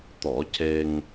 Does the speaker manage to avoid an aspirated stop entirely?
yes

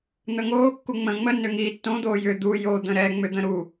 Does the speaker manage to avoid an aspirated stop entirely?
yes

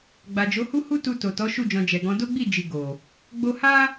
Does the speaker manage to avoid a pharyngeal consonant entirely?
yes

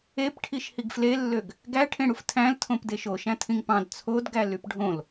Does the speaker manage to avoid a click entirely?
yes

